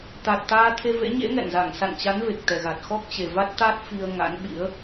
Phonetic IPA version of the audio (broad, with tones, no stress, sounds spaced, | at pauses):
t̪ a˨˩ t̚ t̪ aː˧ t̪ʰ e˧ v ḛ˧˥ ɲ ḛ˧˥ ŋ ɛ̰˧˨ n z a˧˩ ŋ s a̰˧˨ n t͡ɕ a˨˦ n v e˨˩ k̚ t̪ ɛ˨˩ ɣ a˨˩ t̚ x ɔ˦˥ k̚ t͡ɕ e˨˩ v a˦˥ t̚ t̪ a˦˥ t̚ f i˧ ə̯ ŋ a̰˧˥ n ɓ ḭ˧˥ ə̯